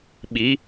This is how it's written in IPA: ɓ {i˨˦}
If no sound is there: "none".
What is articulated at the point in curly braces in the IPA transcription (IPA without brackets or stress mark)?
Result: i˨˦